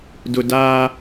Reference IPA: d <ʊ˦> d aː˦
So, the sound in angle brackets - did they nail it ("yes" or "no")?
yes